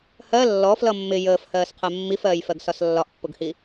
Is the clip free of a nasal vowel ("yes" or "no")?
yes